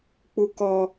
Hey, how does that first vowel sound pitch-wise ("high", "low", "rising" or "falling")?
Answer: high